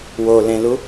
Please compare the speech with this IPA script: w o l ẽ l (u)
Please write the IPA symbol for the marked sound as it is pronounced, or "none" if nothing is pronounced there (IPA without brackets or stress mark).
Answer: u